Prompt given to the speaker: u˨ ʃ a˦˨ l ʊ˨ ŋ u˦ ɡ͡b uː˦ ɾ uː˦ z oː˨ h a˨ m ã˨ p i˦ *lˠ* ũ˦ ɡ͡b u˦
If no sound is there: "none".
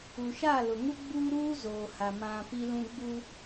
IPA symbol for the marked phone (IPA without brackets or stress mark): l